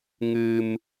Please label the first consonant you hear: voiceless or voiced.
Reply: voiced